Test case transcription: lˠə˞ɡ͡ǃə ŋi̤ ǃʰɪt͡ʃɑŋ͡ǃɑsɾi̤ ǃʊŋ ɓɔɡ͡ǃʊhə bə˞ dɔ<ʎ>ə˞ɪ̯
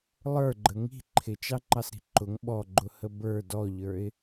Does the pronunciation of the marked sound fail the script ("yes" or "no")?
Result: no